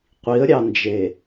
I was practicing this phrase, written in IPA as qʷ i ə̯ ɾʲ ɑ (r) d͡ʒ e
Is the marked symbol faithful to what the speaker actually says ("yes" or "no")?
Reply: no